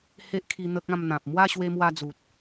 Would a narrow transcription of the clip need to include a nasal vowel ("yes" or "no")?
yes